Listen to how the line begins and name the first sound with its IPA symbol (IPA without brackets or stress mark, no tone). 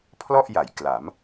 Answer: pʰ